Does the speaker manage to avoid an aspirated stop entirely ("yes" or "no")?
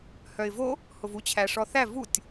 no